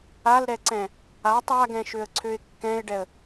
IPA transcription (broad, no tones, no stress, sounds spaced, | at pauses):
a l ɾ ɛ ǀ ɛ̃ | a tˤ a ɡ ɛ̃ ʃ ø ə̯ ǀʰ ø ɪ̯ kː ɛ̃ ɪ̯ ɖ ɛ ə̯